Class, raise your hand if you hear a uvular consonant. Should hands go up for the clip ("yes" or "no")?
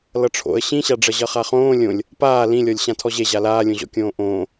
yes